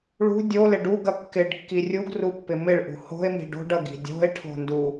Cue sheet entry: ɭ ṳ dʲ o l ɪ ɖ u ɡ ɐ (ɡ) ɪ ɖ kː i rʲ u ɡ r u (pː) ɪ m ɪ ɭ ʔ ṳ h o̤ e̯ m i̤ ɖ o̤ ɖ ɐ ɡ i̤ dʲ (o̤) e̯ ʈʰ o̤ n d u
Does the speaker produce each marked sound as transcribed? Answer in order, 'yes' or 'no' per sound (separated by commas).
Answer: no, yes, yes